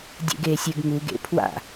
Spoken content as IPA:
dʲ ḛ ɡ eː sʲ ɪ ɡ ŋ u ɡ ḛ pʰ w a̰

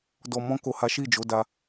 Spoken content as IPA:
d ɔ˨ m ɔ̃˧ k o˨ h a˨˦ ʃ i˦˨ d͡ʒ o˨˦ d a˧

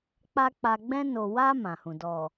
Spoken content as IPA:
k͡p a˦ k͡p a˧ ɡ͡b ɛ̃˧ n o˨ w a˧ m ã˨ h ũ˨ d ɔ˨

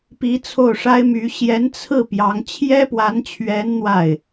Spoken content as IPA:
p i˧˥ t͡sʰ o˥˩ ʊ̯ ʂ a˥ ɪ̯ m y˧˥ ɕ j ɛ˧˥ n t͡sʰ ɹ̩˥˩ p j ɑ˧˥ ŋ t͡ɕʰ j ɛ˥ p w a˧˥ n t͡ɕʰ ɥ ɛ˧˥ n n̪ w a˥˩ ɪ̯

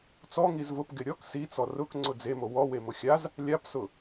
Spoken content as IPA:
t͡s ɔ ŋ i z v ʊ p ɡ ɪ ɾʲ ɔ k s i t͡s ɔ r ʊ k ŋ͡ǀ ʊ d͡z e m o w ɔ w e m ʊ xʲ a z | lʲ a p s ʊ

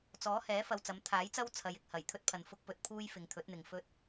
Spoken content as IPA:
t͡s ɔː˨˥ h ɛː˨˥ f ɐ˧ w t͡s ɐ˨˥ m t̪ʰ aː˨˥ j t͡s ɐ˥ w t͡sʰ ɐ˨ j ɪ˨ k̚ h ɐ˨˩ j t̪ʰ ɵ˥ t̚ pʰ ɐ˨ n f ʊ˥ k̚ p ɵ˧ t̚ pʰ uː˥ j f ɪ˨˧ ŋ t̪ʰ ɵ˨˥ t̚ n̪ ɪ˨ ŋ f ɵ˥ t̚

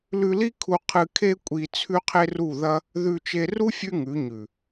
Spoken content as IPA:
l ʉ˧ l i˦ kʰ u˧ qʰ ɨ˧ kʰ e˦ kʷʼ i˧ t͡sʰ ʉ˦ qʰ e˦ r u˦˨ ð ɐ˦ | ð ʉ˧ t͡ʃ e˧ r u˦ fʲ ʉ˦ ŋ ʉ˨˦ ɲ ʉ˨

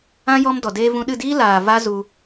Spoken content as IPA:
ã˦ j ɔ˦ m d ɔ˨ d eː˦ v ũ˧ ɗ ɨ˦˨ d iː˦ l aː˨ v a˦ z u˧

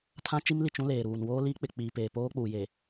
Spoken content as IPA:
tʰ ã˦ t͡ʃ i˦ m l i˨ t͡ʃ ũ˦ l eː˨ ɾ uː˨ n w oː˦ l iː˦ k͡p ɪ˨ k͡p iː˨ p eː˨ p oː˦ k͡p uː˨ j e˨

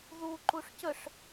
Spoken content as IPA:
ð u ǃ u ʂ c ə ʂ

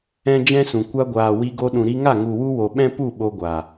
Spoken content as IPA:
ɛ̃˦ d͡ʒ ɛ̃˦ s ũ˨ kʷ a˧ ɡʷ aː˨ w i˧ ɡ o˧ ɗ ũ˨ ɾ i˧ ŋ a˦˨ ŋ u˨ w u˧ w o˨ ɓ ɛ̃˦ p u˦˨ ɓ o˧ ɡʷ a˨

